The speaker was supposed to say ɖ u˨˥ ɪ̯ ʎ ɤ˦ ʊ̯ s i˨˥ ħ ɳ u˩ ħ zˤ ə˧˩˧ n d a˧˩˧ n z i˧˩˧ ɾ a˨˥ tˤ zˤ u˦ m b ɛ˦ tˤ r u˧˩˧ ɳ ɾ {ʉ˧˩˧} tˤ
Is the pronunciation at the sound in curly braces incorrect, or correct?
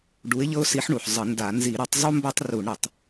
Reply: incorrect: ə˧˩˧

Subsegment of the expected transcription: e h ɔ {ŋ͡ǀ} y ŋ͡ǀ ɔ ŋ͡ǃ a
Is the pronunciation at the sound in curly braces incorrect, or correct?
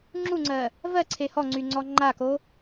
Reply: correct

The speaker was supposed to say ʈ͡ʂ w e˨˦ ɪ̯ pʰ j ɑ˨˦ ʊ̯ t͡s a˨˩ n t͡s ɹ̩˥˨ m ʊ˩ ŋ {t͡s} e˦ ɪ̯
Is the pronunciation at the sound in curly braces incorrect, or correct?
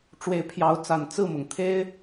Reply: incorrect: t̪ʰ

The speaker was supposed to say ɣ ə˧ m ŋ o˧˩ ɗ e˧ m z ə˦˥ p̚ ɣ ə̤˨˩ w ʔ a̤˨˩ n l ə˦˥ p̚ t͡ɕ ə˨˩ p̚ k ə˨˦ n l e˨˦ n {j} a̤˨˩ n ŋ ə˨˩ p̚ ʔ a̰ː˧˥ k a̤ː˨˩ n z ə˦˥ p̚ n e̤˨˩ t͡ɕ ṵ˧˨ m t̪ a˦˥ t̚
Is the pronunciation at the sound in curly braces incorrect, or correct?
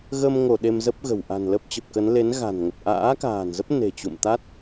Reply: incorrect: ɣ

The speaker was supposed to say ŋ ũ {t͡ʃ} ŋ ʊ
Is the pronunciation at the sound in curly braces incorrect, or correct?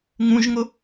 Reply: incorrect: ʒ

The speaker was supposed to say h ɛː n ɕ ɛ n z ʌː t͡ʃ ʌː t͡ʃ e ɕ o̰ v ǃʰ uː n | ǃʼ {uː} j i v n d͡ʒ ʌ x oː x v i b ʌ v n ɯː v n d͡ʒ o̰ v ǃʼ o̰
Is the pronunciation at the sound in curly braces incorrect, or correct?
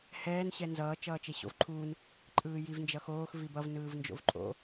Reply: incorrect: ɯː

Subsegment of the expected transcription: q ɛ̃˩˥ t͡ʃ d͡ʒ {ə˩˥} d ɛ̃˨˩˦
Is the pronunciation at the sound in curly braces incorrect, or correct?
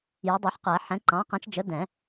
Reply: correct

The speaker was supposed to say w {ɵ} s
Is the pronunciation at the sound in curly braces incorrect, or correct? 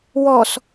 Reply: incorrect: ɔ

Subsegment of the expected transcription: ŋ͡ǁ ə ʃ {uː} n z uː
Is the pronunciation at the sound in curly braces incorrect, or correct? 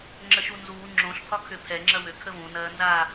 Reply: incorrect: u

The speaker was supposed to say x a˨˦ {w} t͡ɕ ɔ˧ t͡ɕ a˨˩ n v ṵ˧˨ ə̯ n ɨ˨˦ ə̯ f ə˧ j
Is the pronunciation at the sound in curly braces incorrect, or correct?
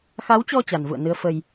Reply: correct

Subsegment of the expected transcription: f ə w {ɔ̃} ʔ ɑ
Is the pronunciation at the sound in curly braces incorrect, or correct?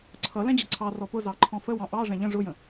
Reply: incorrect: ɑ̃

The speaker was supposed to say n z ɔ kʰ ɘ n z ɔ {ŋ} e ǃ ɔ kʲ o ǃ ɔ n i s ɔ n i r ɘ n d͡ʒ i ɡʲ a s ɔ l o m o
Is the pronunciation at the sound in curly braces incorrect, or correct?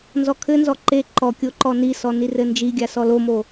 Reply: incorrect: ǃ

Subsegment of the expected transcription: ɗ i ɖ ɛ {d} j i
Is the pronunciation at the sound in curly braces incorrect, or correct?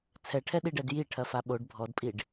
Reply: correct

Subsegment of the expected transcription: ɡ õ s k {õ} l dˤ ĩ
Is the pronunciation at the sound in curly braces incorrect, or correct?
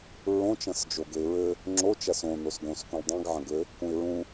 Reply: incorrect: ũ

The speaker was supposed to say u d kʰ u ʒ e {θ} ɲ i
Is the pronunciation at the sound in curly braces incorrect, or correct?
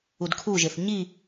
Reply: correct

